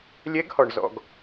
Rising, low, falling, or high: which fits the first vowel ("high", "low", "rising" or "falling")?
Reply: rising